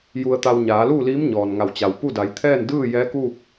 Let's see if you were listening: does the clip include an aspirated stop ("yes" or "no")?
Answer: yes